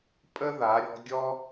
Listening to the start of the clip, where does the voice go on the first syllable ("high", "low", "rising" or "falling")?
high